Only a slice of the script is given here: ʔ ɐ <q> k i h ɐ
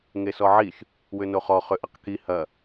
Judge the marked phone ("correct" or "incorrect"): correct